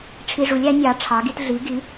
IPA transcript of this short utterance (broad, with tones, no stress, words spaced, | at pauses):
ʈ͡ʂʰi˧ʐu˩˥lʲæ˩˥nʲɑ˩˥ ʈ͡ʂʰɑ˩˥ɡi˧t ɮi˩˥ɡi˩˥